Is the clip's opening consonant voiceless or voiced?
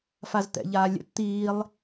voiceless